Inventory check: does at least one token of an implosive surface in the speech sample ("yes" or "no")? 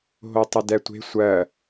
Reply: no